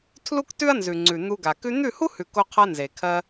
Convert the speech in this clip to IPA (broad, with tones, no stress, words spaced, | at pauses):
tʰlu˦ktʉ˦ɐ̯nzʉ˨ŋ͡ǀʉ˨ n̪u˧ ɡa˨ kʉ˧n̪ʉ˦˨hu˦hʉ˨ ko˧qʰa˧ nze˨kʰɜ˧